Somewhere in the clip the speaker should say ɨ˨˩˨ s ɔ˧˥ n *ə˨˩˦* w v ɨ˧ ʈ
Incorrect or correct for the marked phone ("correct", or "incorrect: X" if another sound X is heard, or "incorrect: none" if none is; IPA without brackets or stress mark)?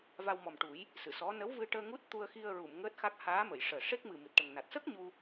incorrect: ə˧˥